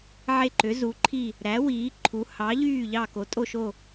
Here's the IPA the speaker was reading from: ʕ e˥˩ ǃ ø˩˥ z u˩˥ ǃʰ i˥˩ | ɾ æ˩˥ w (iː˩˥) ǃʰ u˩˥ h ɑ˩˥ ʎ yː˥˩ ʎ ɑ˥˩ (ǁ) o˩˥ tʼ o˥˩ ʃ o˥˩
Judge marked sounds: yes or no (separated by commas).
yes, no